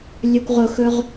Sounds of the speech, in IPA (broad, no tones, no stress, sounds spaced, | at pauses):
lʲ ɵ kʷ ʁ ʊ x ɵ ʁ